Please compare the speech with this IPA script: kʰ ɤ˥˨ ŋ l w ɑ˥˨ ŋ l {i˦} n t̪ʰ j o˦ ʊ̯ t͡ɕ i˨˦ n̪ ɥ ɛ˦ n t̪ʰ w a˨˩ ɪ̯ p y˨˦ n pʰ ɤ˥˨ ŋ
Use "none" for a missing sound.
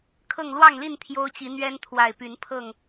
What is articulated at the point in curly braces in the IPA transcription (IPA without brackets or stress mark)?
i˥˨